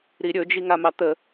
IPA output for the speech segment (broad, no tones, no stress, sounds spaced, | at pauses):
ɾ i ɾʲ ɵ d͡ʒ i ŋ a m ɑ t̪ ə